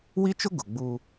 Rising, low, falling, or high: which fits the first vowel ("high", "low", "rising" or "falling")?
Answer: high